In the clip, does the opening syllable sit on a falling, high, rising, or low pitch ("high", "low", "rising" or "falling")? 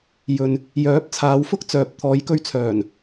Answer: low